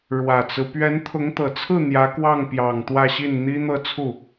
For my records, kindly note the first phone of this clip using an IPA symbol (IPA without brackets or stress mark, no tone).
ɻ